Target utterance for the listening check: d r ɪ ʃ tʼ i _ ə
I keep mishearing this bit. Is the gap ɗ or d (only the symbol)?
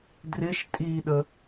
ɗ